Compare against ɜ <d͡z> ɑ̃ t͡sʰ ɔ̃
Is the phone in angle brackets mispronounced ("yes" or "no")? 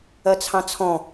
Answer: yes